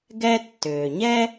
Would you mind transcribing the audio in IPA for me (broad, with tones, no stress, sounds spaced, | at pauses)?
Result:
ɡ ɛ˥ tː ʏː˩ ɲ ɛ˥